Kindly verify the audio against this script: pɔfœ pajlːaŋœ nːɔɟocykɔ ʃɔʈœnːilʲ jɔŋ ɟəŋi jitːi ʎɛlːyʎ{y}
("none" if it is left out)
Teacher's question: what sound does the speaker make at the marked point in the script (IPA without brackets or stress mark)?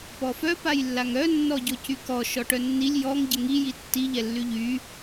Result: y